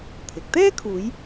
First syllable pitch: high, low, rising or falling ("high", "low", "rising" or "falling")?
rising